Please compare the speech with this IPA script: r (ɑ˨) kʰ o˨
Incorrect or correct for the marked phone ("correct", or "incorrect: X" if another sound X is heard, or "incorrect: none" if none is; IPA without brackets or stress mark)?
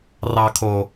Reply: correct